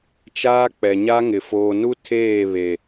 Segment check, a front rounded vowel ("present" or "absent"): absent